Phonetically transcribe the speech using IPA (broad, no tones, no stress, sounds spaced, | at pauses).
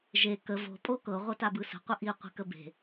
ʒ e k ə v o̤ pʼ o k ɤ ʁʷ ɤ t a b ɯ s ə̤ qʷ ə ʔ i qʷ i̤ k ə b e̤